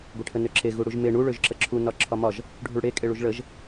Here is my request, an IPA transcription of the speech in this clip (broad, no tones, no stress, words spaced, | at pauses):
ɡʷeʈʰənøǁe ɣuɽuʒme ɳu ɭøʒǁəǁʰu nɒǁʰɒmɒʒ | ɖʱuɭɽe kʼeɭuʒɭəʒ